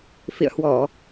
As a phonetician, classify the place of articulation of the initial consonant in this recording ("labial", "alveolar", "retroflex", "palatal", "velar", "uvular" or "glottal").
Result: labial